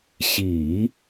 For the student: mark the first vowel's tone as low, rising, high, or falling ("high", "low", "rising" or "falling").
low